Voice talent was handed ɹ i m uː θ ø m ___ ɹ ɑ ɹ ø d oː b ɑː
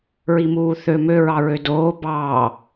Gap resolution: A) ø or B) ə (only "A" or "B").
A